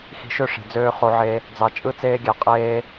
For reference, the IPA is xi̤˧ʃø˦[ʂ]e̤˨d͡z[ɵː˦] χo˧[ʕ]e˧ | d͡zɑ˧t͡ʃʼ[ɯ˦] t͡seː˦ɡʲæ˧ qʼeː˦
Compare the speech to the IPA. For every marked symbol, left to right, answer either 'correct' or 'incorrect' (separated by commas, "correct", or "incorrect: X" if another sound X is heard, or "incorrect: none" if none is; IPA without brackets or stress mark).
correct, incorrect: øː˦, correct, correct